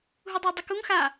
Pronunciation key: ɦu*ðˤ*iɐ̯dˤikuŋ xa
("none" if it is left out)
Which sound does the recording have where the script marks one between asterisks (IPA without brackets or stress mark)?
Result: dˤ